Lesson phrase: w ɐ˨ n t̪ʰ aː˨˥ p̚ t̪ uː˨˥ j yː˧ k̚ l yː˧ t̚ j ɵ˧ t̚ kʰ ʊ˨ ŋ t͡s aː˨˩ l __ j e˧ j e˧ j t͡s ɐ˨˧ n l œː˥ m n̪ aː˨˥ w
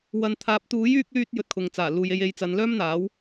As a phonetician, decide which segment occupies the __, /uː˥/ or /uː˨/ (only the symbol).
uː˨